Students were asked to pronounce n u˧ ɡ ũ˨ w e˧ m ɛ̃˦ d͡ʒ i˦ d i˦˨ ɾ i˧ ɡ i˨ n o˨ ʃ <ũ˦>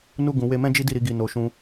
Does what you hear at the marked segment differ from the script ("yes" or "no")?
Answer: yes